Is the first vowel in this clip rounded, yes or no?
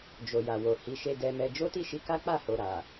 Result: yes